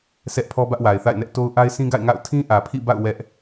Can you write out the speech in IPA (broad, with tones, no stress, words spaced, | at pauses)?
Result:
sʰɛ˦ʔpʰɔ˦bä˦ʔ wa˨ɪ̯θa̰˦˨ɪ̯nɛ˦ʔ to˦ʊ̯ ʔa˦ɪ̯sʰĩ˦ɡa̰˦˨ɪ̯ŋa̰˦˨ʊ̯ tʰĩ˦ʔä˨pʰḭ˦˨ba̰˦˨ʊ̯ wɛ˦ʔ